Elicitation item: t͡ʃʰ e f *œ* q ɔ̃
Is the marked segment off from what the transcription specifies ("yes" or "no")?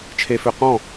yes